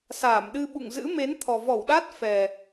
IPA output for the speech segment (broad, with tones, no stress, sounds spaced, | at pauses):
s aː˧˩ m ɗ ɨ˧ ɓ ṵ˧˨ ŋ z ɨ̰˧˥ m e˨˦ n t̪ʰ ɔ˨˩ v ɔ˧˩ w ɗ a˦˥ t̚ f ɛ˨˩